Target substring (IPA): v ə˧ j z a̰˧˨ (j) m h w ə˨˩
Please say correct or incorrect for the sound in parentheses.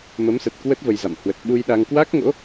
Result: incorrect